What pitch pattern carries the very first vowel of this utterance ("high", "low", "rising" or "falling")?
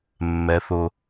high